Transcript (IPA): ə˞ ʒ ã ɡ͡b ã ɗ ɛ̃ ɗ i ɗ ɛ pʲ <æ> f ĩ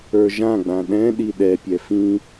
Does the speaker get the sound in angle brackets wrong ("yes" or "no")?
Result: yes